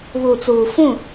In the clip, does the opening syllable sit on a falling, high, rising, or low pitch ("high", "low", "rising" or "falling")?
low